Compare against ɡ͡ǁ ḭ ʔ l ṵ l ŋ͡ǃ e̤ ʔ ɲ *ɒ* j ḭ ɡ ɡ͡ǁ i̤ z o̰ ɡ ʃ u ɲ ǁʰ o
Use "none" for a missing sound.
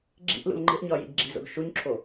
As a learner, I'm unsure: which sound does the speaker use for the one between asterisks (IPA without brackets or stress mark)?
ɒ